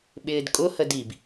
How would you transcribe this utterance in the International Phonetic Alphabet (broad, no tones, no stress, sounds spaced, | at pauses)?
ɓ ɪː d kʼ ʊ h ə d i b